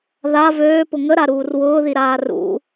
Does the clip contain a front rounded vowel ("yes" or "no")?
yes